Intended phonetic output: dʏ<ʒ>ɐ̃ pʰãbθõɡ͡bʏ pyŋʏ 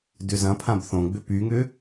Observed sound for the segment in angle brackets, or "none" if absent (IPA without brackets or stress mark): z